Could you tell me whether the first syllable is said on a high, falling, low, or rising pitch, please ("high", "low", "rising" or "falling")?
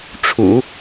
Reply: low